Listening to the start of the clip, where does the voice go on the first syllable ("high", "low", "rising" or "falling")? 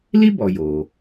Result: high